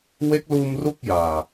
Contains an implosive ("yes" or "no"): no